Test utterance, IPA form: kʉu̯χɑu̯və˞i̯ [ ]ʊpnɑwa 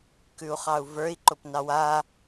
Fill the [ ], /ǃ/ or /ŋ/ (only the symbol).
ǃ